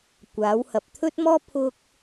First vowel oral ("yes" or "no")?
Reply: yes